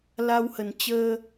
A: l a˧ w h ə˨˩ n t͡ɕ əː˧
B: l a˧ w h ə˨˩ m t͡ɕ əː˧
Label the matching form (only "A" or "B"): A